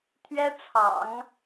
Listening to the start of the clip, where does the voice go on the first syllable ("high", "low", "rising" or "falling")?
high